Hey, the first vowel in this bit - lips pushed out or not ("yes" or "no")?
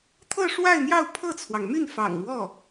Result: no